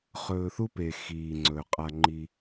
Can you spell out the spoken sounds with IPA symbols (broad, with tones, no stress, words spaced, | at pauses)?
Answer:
χɵː˨θu˥pe˩ xiː˩ŋ͡ǀɵː˩qʼa˨ŋ͡ǃi˨